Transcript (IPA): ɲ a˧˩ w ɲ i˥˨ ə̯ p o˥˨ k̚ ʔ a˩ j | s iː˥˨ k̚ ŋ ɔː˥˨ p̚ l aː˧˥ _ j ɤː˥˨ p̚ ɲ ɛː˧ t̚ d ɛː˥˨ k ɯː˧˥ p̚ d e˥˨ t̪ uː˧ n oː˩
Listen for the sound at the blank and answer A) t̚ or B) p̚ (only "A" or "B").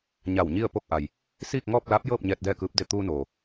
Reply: B